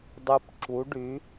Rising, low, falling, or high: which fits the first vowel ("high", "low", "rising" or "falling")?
high